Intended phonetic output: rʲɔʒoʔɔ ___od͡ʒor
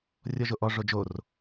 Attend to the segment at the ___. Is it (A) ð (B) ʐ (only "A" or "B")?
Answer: B